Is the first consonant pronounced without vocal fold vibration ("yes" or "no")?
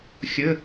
yes